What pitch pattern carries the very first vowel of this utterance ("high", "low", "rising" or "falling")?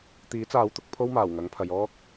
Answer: rising